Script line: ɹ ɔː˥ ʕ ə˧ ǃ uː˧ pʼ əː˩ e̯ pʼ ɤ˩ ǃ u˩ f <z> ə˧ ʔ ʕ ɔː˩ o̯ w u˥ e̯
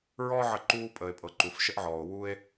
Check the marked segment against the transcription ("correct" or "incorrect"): incorrect